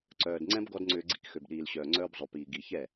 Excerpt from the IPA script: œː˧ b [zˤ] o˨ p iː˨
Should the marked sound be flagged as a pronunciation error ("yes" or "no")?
no